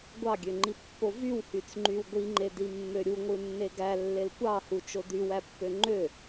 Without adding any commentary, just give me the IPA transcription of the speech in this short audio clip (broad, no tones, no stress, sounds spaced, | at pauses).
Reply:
ɡʷ ɑ ɡʲ ø ŋ͡ǃ i pː o v y w h y t͡s ŋ͡ǃ y w ɡʷ i ŋ͡ǃ e d i mː ø ɾʲ u ŋʷ ɯ nː e ɡ æ lː e l kʷ ɑ h u t͡ʃ o d y w æ pː ø ŋ͡ǃ ø